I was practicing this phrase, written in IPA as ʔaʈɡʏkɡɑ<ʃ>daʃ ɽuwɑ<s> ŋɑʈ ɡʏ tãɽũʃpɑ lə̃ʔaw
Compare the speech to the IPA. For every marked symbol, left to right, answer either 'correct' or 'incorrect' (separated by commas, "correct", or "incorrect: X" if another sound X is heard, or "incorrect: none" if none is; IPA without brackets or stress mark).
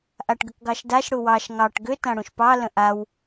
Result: correct, incorrect: ʃ